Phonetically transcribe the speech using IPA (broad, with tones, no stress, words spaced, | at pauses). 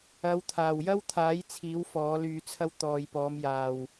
ɐ˨˧wt̪ʰaː˨˩wjɐ˥wt̪ʰaː˨˥j t͡sʰiː˨˥wfɔː˨˥lyː˧t͡sʰɐ˥w t̪ɔː˨jpɔː˨˧mjaː˨w